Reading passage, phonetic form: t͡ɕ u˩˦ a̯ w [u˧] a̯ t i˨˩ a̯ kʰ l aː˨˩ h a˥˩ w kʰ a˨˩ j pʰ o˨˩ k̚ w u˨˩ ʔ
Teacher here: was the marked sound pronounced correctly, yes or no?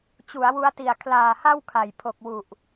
no